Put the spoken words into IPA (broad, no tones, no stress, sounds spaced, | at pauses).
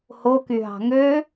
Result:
h o k y ɦ ɑ̤ ŋ ø